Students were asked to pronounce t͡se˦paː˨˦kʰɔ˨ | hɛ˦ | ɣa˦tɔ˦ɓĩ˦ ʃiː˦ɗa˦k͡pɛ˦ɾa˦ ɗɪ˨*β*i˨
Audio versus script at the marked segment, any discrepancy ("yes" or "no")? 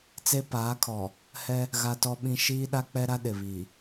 no